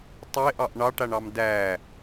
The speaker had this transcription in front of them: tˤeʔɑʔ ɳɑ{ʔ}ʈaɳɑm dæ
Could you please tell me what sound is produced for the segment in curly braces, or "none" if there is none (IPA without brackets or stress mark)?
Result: none